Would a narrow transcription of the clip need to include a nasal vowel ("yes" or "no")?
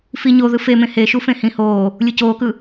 yes